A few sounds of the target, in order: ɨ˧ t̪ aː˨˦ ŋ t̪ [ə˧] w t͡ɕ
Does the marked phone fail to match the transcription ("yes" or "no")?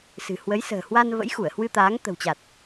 yes